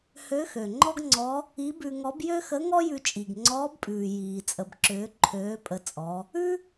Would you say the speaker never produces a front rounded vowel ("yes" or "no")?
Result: no